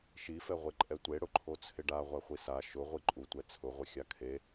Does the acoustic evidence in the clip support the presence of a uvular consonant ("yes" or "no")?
yes